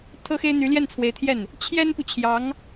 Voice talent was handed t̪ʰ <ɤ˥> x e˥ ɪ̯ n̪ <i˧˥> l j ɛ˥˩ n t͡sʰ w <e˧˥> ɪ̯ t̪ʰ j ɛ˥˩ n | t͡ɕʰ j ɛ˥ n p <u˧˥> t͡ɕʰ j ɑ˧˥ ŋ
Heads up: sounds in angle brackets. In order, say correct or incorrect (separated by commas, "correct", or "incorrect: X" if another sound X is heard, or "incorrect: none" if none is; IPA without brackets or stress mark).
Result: correct, incorrect: y˧˥, correct, incorrect: u˨